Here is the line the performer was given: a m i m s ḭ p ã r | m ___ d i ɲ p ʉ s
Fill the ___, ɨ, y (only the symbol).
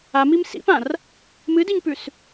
ɨ